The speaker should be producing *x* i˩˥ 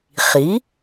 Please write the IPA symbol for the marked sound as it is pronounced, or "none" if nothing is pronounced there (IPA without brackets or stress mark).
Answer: χ